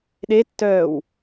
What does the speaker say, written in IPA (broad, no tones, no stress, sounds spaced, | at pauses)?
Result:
ɗ e tː œː w